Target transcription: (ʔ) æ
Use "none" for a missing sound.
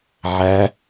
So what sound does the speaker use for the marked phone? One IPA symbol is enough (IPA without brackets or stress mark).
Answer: ʕ